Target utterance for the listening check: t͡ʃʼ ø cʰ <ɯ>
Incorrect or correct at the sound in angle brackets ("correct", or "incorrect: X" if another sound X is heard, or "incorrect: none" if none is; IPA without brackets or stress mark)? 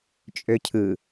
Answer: correct